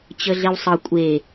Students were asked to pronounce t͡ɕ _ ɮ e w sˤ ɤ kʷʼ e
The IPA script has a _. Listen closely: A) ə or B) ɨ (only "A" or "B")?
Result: A